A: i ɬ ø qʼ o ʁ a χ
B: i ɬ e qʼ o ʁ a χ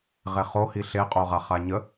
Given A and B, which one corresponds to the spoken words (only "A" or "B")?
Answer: B